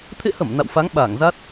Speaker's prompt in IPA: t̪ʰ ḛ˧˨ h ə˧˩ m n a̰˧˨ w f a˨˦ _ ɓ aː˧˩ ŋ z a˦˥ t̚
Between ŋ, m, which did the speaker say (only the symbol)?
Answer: ŋ